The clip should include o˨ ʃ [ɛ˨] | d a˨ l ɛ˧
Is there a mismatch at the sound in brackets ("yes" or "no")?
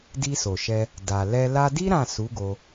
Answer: yes